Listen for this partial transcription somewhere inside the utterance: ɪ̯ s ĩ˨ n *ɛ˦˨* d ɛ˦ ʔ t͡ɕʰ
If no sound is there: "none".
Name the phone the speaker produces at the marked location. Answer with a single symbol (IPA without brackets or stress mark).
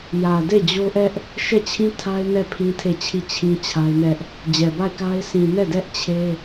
ɛ˦˨